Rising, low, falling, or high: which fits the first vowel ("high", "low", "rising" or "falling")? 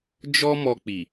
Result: high